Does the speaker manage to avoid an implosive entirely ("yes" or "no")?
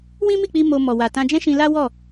yes